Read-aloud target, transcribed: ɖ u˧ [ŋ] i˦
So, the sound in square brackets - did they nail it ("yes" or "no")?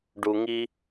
yes